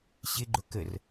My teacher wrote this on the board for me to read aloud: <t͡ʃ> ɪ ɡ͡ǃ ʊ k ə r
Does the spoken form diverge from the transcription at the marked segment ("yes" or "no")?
yes